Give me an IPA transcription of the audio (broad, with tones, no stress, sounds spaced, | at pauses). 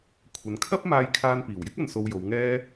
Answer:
kʷʰ ɐ˨ n kʰ ɐ˥ p̚ m aː˧ j kʰ aː˧ n p iː˨˩ w j ɪ˥ k̚ ɐ˧ n s o˧ w j o˨˧ w ŋ ɛː˥